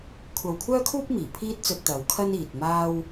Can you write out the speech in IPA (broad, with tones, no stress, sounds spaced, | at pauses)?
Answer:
kʷʰ ɐ˧ w kʷʰ œː˥ kʰ uː˥ p̚ m iː˨˩ pʰ iː˥ t̚ t͡s ɵ˧ t̚ t̪ ɐ˨˧ w kʰ ɐ˥ n iː˨ t̚ m aː˧ w